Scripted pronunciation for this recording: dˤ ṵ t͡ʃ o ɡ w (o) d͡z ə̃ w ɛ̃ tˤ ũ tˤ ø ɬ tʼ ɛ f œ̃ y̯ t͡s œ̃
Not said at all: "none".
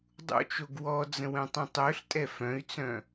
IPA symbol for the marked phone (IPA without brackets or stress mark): ɔ